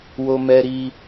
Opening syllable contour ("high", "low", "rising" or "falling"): high